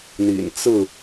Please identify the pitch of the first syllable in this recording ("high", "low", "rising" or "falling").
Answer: low